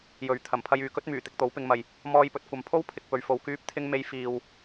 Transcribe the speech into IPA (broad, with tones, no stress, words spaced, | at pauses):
jɵ˨ɥ t̪ʰɐ˨˩m pʰɐ˧jyː˨kɵ˥t̚myː˨˩ t̪ɪ˧k̚t̪o˨˥wpɪ˨˧ŋmɐ˨j | mɔː˧jpɵ˨t̚kʷɐ˨m pʰo˥w pʰɪ˨k̚pɵ˨ɥ fo˨wkyː˧p̚ t̪ʰɪ˧ŋ me˧j fiː˨w